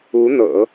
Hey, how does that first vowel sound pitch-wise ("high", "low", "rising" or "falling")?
rising